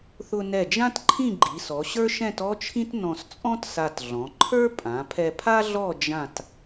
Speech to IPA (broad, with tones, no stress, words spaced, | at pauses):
θʊ˧nɛ˧˩d͡ʒã˥t ǃʰĩ˥˧ɡ͡ǃi˩˧sɔ˩˧ɕə˞˥ ʃɛ̃˥˧tɔ˥t͡ʃʰĩ˥t nɔ̃˧st͡sʼɔ̃˥t sa˧tɮɔ̃˩˧ ǃʰə˞˥ pʼã˩˧pʰɛ˧pʰa˥ɮɔ˥˧ d͡ʒã˥˧t